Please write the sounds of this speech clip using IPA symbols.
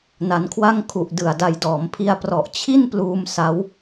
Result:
n a˧ n kʰ w a˥˩ ŋ kʰ u˨˩ ʔ d ɯ˨˩ a̯ d a˧ j d ɔː˩˦ m pʰ i˧ a̯ p r ɔ˨˩ ʔ t͡ɕʰ i˥˩ n p l uː˧ m s a˦˥ w

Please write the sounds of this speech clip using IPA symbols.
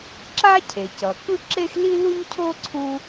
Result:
ǁ a˥ cʰ e˩ c ʌ˩ k ɯ˥ ǁ e˥ x l i˥ l u˥ ɲ cʰ o˥ ǀʰ u˥

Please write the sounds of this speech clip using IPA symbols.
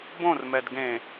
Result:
b õ r m ɛ d ɡ ẽ

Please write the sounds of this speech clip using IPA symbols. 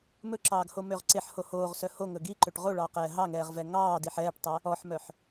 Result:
m ɵ ǁ ɑː ɡ h o m ø ʁ ǀ e ħ h o h oː ʁ s œ h o ŋ ɵ ɡ i ǃ ø ʈ ʁ o ɭ ɑː q ɛː ɦ ɑ ŋ ɛː ʁ v ɛ ŋ ɑː d i ħ ɛː ʈ tˤ ɛ | ɔ ħ m œ ħ

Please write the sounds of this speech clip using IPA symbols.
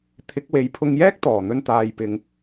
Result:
t̪ʰ ɪ˨˥ k̚ w e˨˥ j pʰ ʊ˧ ŋ j ɛː˥ k̚ t̪ ɔː˨˩ n̪ ɵ˧ n t̪ aː˧ j p ɪ˧ ŋ

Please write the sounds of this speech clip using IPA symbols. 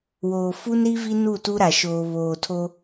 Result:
w oː˨ f u˦ n ɾ i˦ v i˦ n u˦˨ t u˦ ɾ a˨ ʃ oː˨ β oː˨ tʰ o˦

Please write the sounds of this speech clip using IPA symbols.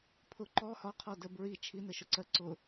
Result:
pʰ ʊ ǃ ɔ h ɒ qʰ ɔ d ə b ɹ i t͡ʃʰ i n ə ʃ ʊ ǀ ɜ ǀ ʊ

